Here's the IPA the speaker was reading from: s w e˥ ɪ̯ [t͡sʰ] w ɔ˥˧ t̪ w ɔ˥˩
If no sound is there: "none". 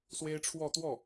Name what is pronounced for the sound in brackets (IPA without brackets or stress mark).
ʈ͡ʂʰ